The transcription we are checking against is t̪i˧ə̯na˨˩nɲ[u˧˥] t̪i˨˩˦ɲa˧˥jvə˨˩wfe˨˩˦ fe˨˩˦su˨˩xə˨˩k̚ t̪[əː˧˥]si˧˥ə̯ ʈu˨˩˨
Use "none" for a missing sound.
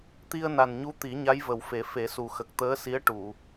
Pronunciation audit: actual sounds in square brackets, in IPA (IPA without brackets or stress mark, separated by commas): u˧˥, əː˧˥